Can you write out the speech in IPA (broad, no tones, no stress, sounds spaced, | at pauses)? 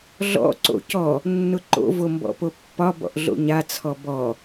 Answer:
ɮ ɔ̰ ǀ o̰ c ɔ | nː ʊ ǃ o̰ v o m b ɔ̰ p o pː ɒ b ɔ̰ ʔ ɮ o̰ ɲ a t͡sʰ ɔ b ɔ